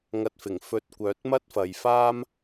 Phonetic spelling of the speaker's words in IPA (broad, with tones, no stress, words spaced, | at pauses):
ŋɐ˧t̚ fɪ˨˩ŋfɵ˧t̚ kʷœː˨˥t̚mɐ˥t̚fɐ˨jfaː˥m